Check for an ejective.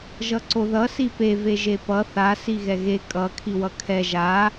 present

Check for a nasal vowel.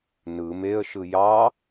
absent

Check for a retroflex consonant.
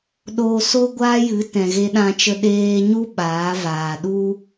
absent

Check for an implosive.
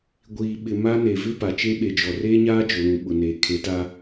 present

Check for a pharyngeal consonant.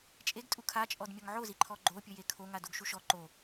present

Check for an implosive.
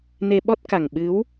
present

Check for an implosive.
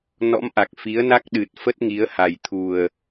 present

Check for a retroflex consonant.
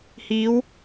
absent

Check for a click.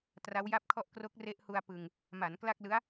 absent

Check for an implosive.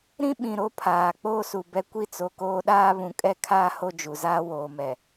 present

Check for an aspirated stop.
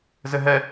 absent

